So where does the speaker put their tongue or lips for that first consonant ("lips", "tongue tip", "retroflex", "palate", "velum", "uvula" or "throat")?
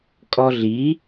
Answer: velum